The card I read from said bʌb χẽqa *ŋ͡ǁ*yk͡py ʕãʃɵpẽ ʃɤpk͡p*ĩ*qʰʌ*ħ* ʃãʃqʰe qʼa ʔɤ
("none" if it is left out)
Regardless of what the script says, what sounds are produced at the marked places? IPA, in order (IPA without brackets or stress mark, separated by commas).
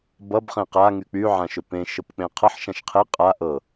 ŋ, ẽ, ħ